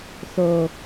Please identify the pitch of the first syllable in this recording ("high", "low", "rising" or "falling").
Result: low